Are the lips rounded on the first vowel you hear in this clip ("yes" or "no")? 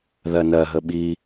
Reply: no